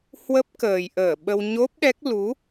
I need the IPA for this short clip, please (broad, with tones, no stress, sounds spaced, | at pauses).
h w ə˦˥ p̚ k əː˨˩ j ʔ əː˧˩ ɓ ə˧ w ɲ o˦˥ p̚ ɗ ɛ˦˥ k̚ l u˨˦